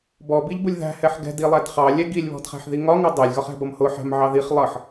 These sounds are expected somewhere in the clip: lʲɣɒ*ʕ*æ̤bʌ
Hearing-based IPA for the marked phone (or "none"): χ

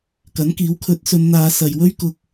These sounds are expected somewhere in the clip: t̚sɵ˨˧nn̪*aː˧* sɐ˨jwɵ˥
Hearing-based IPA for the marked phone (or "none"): aː˨˧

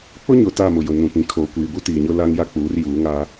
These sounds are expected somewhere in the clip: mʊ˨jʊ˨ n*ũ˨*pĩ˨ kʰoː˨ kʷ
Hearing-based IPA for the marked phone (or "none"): ũ˨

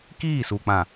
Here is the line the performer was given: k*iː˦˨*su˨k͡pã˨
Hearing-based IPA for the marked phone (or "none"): iː˦˨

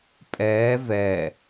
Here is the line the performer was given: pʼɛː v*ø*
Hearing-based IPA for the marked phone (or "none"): ɛ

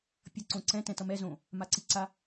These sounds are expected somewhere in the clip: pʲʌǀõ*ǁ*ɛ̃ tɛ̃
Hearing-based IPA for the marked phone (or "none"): ǀ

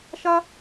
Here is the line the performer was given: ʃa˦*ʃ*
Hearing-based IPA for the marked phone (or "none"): none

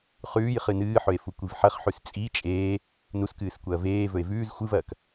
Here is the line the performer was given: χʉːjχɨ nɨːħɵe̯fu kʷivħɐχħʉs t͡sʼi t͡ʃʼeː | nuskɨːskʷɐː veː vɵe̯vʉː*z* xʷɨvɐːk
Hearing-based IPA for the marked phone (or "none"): z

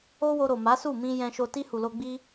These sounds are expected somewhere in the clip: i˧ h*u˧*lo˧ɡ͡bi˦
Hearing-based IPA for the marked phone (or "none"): u˨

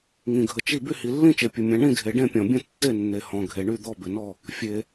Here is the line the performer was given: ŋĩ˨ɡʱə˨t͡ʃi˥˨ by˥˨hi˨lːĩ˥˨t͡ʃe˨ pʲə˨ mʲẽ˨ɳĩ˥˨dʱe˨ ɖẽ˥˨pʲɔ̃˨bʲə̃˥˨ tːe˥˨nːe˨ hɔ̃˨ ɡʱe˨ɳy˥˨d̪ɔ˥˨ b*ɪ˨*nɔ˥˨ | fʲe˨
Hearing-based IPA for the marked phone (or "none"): ɪ˨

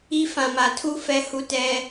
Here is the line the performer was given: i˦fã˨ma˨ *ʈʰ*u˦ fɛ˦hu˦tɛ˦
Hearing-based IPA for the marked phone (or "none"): tʰ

